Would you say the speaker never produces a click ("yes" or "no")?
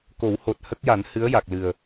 yes